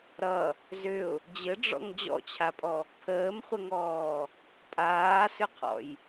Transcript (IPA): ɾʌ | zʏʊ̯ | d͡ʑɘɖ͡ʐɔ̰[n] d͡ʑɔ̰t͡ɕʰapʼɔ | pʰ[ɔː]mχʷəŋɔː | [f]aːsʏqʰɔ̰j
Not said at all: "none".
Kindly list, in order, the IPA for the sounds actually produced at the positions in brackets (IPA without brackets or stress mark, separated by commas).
ŋ, əː, pʼ